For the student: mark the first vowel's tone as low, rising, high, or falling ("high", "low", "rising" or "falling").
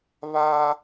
high